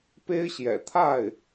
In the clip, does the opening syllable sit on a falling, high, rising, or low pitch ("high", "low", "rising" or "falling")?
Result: high